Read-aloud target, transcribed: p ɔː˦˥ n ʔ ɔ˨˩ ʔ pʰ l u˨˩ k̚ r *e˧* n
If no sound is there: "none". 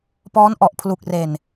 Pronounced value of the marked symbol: e˨˩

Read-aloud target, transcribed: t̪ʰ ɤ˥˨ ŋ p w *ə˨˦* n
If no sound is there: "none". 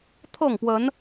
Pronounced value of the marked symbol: ə˨˦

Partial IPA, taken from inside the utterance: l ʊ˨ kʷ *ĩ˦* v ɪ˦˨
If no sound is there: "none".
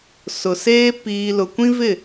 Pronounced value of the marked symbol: ĩ˦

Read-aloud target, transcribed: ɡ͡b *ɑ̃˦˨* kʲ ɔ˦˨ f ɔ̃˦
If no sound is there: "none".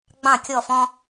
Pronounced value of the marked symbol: ɑ̃˦˨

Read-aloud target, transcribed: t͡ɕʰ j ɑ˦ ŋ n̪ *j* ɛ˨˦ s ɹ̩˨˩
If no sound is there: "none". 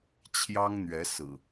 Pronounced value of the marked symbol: ɥ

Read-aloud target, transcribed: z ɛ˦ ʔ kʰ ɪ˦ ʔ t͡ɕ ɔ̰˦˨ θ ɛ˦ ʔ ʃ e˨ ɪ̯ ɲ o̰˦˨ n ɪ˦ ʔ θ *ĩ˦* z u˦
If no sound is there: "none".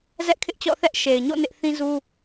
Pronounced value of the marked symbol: ĩ˦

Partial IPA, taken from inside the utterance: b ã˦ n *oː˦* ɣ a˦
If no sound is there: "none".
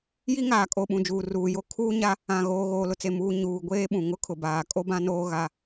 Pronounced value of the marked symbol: oː˦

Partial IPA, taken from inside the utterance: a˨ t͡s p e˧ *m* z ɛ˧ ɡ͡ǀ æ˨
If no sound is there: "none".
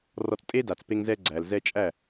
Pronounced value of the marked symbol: ŋ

